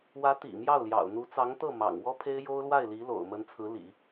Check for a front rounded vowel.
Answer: absent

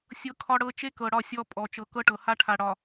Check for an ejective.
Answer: present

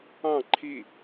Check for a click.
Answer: present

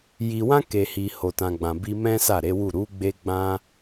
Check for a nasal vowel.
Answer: present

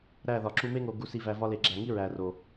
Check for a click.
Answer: present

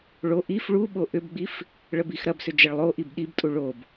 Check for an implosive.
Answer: present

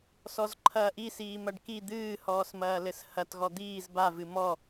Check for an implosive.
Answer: absent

